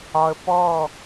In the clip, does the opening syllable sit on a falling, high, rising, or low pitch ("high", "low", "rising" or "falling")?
low